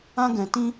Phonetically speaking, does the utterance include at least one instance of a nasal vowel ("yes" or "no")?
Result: yes